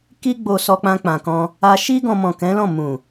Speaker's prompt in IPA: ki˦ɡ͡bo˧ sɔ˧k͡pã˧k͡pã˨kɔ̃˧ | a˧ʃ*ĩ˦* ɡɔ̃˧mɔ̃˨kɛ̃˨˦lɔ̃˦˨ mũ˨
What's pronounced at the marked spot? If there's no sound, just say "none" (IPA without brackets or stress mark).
i˦